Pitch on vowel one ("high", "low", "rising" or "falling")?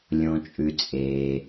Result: low